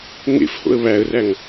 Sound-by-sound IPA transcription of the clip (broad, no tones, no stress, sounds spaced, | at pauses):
ŋ ḛ f h o̰ ə̯ β æ ə̯ r æ ŋ